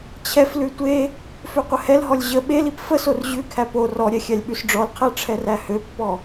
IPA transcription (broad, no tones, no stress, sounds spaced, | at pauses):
t͡ɕʰ ɛ f l ʉ tʷ e | f ø qʷ ə h ɛ l ɦ ɔ lʲ ʑ ə ɓ e l i p f ə s o r ʑ ʉ kʰ æ p o r ɔ ɾʲ ɛ xʲ æ lʲ ɓ ʉ s ɖ͡ʐ ɔ l qʰ æ ʈ͡ʂʰ ɛ r æ h ø pː ɔ